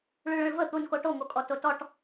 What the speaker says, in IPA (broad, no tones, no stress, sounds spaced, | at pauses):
ɭ y ɭ ə̃ ɭ v ə t̪ u n k o ʈ o ŋ o kʼ ɔ t o t ɔ ʈ